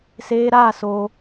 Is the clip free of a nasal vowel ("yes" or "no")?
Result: yes